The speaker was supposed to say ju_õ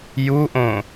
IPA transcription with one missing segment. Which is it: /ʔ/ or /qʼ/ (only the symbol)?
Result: ʔ